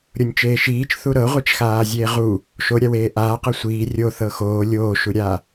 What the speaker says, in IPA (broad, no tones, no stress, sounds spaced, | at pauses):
ɾʲ o nʲ t͡ʃ eː ʃ iː t͡ʃ θ u ɾ ɤ ʁʷ i t͡ʃ x aː zʲ eː ʁ u | ʃ o ɾʲ a w eː ʔ aː q ɤ sʷ iː rʲ o θ ɤ x oː lʲ oː ʃ u ɾʲ a